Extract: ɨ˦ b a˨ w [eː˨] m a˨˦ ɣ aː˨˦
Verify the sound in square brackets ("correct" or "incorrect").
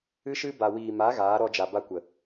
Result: incorrect